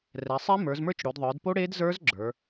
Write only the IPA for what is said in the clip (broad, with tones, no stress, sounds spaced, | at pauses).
r ɛ˩˧ sˤ e˦˥ m ə˞˩˧ z m ə˞˦˥ t͡ʃ ɽ o˩˧ d ðˤ ə˞˩˧ d p o˦˥ ɽ e˦˥ d z ə˞˦˥ z ɡ͡ǁ ə˞˩˧